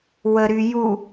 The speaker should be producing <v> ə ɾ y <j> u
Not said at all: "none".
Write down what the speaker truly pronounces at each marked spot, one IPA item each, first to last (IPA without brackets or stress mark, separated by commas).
w, j